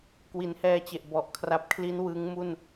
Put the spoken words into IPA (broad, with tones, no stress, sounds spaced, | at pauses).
k w i˩˦ n h ɛː˧ t͡ɕ e˨˩ ʔ b ɔ˨˩ ʔ kʰ r a˦˥ p̚ kʰ l i˦˥ n w ɯ˦˥ ŋ m u˥˩ n